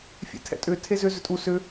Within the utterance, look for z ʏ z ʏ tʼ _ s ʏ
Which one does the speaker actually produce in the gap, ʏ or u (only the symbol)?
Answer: u